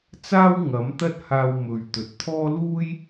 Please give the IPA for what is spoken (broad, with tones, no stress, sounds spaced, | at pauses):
t͡s aː˥ w ŋ ɐ˨˥ m t̪ ɐ˥ t̚ h aː˧ w m ɵ˨ ɥ t̪ ɵ˨ t̚ t̪ʰ ɔː˥ l uː˥ j